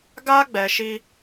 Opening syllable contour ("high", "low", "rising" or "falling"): high